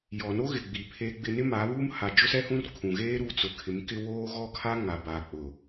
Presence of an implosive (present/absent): absent